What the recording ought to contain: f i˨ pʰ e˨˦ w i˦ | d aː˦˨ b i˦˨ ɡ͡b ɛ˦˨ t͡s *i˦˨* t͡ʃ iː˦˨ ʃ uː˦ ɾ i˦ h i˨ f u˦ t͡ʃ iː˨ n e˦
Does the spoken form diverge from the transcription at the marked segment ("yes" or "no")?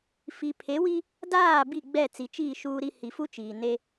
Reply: yes